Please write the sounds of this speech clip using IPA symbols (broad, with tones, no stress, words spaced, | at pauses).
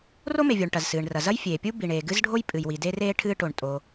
ro˥me˩vʲo˩ɳ ʈɐ˩zsɨː˩ɳrɐ˩ zɐ˥jfʲeː˩pʲu˥ bi˩ɳeː˩ ɡɨ˥zɖʱo˥jpʼɨ˩jwi˩ de˥reː˥ ʈʰɨː˥ʈo˩ɳtʼo˩